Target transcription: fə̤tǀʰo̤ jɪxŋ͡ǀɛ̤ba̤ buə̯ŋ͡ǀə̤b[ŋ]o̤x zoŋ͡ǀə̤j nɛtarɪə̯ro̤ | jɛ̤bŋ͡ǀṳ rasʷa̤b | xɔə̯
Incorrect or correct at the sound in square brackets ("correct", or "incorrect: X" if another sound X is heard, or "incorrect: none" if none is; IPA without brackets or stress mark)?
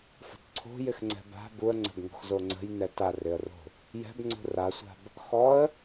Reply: correct